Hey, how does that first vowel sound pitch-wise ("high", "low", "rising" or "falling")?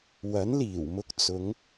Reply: rising